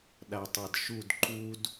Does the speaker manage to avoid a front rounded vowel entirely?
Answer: yes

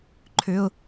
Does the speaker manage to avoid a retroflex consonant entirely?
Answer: yes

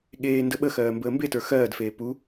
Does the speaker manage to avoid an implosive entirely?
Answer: no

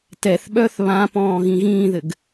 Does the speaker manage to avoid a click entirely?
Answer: yes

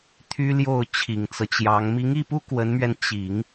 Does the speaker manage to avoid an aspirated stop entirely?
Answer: no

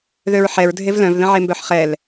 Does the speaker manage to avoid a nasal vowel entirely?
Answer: no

